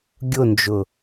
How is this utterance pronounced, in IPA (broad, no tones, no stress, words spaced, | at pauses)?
ɡʲʊnd͡ʒʊ